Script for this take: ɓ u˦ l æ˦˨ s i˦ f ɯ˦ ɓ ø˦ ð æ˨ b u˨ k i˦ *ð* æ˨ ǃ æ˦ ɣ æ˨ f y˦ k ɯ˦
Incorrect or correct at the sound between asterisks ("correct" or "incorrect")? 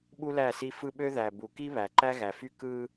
incorrect